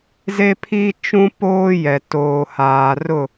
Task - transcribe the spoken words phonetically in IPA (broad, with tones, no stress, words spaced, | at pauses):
ze˦pʰi˦t͡ʃũ˦ poː˦jɛ˨ toː˨haː˨rʊ˦˨